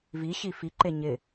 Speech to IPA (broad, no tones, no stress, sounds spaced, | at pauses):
v i ɕ i f i ǃ e ɲ ɪ